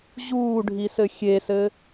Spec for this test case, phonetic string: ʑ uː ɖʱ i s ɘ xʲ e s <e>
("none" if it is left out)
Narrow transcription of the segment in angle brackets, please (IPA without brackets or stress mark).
ɘ